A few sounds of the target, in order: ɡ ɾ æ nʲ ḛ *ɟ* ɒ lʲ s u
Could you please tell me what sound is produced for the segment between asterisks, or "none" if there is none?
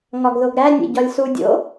ɟ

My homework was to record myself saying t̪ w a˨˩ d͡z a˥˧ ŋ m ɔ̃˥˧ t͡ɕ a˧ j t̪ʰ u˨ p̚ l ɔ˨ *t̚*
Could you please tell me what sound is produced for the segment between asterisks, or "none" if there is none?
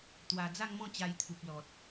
t̚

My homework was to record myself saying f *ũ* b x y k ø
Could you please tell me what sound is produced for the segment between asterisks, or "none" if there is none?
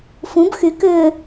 ũ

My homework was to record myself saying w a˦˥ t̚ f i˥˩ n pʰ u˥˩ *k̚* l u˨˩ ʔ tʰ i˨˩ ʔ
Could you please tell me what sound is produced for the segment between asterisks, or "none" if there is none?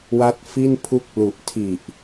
k̚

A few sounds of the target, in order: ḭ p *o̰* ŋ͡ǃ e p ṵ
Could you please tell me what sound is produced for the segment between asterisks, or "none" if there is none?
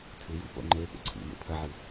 o̰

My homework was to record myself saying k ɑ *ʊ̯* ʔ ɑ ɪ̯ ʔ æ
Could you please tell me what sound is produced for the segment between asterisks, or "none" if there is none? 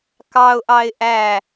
ʊ̯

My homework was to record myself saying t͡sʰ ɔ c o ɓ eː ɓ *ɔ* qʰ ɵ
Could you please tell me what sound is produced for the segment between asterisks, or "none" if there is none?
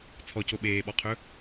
ɔ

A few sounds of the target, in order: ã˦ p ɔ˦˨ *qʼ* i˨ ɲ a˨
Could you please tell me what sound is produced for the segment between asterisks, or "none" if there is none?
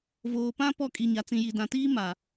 kʼ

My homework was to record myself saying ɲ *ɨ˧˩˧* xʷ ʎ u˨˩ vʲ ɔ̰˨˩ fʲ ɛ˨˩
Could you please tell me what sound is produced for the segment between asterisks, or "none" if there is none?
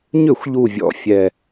ʏ˧˩˧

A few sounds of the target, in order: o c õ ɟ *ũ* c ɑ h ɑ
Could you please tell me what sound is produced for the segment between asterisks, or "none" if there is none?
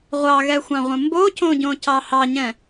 õ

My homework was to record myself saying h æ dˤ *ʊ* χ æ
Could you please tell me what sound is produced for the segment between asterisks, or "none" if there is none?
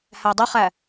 ʊ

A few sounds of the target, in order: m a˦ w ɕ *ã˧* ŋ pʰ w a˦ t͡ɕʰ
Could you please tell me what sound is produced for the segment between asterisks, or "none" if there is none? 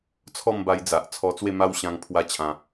ã˧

